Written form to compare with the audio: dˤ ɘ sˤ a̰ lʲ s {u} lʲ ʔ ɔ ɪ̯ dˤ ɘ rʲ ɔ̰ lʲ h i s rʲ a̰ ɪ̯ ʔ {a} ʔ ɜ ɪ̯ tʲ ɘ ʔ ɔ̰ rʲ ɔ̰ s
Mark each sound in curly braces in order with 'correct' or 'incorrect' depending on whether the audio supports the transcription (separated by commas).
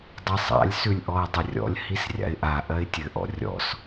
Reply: incorrect, correct